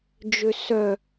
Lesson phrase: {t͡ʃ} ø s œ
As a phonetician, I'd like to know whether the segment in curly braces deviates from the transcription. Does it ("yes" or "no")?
yes